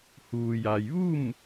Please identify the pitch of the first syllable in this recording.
low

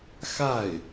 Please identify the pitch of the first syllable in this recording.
falling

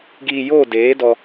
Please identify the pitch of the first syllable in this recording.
low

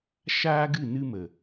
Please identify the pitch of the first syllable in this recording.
high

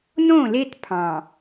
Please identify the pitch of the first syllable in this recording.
falling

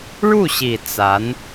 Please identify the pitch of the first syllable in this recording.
falling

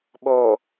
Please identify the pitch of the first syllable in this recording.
low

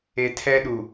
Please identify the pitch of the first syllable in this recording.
low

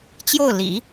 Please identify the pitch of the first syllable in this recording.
falling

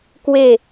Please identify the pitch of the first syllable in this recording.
falling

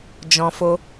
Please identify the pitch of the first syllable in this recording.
low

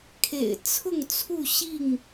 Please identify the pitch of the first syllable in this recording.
low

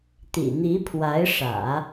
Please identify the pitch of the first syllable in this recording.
low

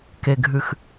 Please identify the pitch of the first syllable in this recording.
low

